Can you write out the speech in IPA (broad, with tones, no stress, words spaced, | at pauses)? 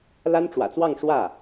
la˥nʈ͡ʂwä̰˨˩t͡swɑ˥˧ŋ ʂwä˥˩